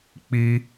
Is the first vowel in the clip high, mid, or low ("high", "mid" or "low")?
high